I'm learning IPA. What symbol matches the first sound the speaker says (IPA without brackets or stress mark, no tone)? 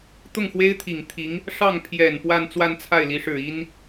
t̪